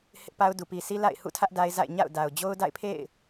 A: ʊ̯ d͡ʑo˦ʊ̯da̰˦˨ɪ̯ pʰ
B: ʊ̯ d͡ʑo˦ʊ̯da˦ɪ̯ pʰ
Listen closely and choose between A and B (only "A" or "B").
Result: A